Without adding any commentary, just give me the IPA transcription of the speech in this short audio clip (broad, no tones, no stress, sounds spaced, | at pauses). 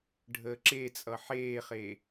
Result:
ɖʱ əː ǁ e t͡sʼ ʌ ħ eː χ e